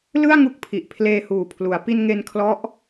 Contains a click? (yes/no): no